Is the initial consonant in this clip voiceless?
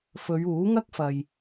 yes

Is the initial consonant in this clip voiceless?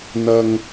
no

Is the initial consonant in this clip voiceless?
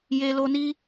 no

